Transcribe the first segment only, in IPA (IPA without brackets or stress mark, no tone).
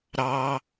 ɾ